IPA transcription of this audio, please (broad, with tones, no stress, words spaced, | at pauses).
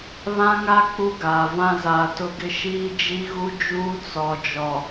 βã˦ŋa˦ k͡pu˦ɡaː˨vã˦ zaː˨tʊ˦ɡɪ˦ ʃiː˦d͡ʒi˦ɣu˦d͡ʒuː˦ t͡sɔ˨d͡ʒɔ˨